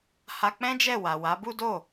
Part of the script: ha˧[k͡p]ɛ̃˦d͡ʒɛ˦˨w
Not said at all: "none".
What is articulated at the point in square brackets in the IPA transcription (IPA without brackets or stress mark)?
k͡p